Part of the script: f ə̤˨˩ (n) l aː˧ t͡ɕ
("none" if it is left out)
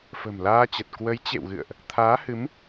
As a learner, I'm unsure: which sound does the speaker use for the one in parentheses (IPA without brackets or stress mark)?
m